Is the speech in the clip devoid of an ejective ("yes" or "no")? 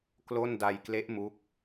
yes